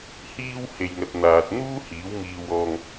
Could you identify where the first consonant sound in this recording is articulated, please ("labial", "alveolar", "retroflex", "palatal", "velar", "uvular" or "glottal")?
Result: glottal